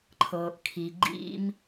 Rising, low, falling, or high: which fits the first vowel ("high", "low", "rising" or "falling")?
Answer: low